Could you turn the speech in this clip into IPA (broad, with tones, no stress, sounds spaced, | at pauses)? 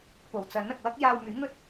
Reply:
p o˨˩ w t͡s ɐ˨˥ n ɐ˨ k̚ w ɐ˥ k̚ j aː˧ w m yː˨˥ ŋ ɵ˥ t̚